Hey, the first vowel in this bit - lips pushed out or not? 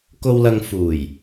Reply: yes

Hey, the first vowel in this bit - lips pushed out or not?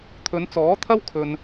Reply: yes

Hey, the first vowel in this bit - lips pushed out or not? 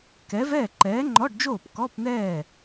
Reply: no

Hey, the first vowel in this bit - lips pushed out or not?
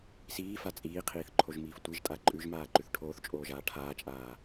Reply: no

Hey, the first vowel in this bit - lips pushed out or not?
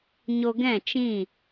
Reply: yes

